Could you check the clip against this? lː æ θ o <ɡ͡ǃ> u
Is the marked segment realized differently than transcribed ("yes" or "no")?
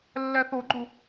no